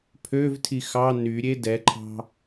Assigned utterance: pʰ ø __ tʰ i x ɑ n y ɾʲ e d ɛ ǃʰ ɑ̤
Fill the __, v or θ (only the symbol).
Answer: v